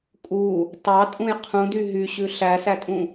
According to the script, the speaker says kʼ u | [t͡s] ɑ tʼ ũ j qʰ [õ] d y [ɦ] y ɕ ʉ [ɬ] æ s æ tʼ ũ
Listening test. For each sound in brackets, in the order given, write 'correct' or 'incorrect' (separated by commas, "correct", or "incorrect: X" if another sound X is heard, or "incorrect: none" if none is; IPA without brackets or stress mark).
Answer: incorrect: tˤ, incorrect: ũ, correct, correct